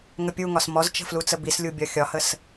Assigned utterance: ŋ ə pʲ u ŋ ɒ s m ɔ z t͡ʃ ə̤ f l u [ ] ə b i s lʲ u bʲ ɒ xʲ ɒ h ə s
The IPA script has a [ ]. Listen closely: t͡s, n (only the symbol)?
t͡s